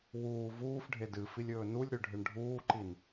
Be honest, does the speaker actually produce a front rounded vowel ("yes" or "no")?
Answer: no